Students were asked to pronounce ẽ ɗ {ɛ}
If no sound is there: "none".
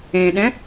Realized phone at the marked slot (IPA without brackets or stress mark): ɛ̃